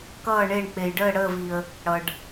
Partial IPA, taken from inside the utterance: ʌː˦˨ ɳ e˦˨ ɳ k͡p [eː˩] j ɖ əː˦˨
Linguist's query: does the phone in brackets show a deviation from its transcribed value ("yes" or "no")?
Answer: yes